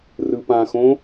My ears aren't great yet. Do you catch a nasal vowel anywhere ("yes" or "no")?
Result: yes